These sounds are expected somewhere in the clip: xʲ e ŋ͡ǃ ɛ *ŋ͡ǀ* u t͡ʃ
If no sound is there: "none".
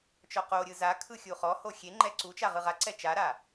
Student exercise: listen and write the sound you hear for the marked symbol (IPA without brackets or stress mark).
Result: ǀ